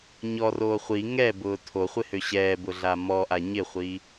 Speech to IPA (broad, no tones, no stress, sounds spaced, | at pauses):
ɲ ɔ r oː χʷ i ŋ ɛ b ʊː tʰ o χʷ ɪ h ø ɕ ɛː b ʊ ɮ a m ɔ ʔ a ɲ ɪ χʷ i